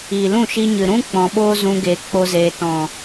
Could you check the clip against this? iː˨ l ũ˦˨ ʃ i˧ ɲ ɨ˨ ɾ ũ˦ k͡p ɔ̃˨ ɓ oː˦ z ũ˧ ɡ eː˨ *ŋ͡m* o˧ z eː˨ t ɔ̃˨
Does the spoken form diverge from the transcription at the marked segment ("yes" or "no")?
yes